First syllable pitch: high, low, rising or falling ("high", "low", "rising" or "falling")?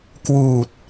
low